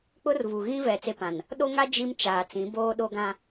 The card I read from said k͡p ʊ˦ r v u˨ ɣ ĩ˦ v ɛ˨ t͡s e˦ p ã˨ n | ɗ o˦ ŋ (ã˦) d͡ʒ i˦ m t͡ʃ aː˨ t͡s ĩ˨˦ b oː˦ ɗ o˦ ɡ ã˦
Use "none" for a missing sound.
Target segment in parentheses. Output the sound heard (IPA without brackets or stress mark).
a˦